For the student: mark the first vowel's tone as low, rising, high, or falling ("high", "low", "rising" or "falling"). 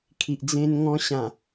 low